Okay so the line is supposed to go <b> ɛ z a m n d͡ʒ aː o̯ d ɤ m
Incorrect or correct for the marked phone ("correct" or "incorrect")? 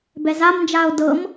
correct